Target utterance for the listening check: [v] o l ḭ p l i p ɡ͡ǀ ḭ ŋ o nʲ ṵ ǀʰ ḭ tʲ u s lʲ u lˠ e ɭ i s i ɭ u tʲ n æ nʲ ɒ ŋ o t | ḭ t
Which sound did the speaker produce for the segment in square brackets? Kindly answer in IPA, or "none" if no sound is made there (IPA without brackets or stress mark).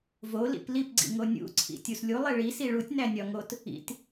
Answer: v